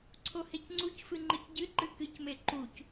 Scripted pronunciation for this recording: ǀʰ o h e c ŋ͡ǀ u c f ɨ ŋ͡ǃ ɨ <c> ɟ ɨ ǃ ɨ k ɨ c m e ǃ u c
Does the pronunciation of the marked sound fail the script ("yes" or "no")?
no